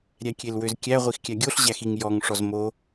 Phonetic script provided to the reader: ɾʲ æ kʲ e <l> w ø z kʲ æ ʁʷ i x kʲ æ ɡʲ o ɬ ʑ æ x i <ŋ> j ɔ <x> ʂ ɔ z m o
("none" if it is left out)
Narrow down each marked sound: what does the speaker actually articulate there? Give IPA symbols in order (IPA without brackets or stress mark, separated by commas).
l, ŋ, ŋ